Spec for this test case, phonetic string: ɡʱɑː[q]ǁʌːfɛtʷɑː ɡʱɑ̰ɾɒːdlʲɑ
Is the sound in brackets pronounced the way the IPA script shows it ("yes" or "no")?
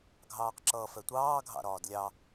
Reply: yes